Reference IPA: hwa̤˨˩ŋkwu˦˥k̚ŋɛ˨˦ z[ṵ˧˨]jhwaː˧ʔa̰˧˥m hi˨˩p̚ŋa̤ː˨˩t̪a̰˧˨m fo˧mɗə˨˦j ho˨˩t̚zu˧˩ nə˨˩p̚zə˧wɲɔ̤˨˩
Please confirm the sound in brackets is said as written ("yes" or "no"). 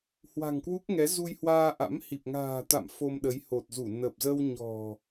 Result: no